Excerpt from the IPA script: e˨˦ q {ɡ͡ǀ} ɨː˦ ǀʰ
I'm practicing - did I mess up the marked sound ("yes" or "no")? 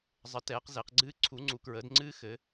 no